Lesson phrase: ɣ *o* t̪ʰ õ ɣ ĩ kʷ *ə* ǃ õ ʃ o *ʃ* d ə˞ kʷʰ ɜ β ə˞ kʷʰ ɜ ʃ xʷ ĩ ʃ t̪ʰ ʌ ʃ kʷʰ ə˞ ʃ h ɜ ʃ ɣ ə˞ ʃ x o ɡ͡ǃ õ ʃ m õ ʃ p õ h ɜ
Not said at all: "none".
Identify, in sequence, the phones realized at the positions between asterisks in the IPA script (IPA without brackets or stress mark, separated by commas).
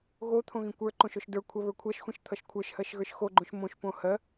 o, ə˞, ʃ